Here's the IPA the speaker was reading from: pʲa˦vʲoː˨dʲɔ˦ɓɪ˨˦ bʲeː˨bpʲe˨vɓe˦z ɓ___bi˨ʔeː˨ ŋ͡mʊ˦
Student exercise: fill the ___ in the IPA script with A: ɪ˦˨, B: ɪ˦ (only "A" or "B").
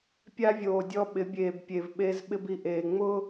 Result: B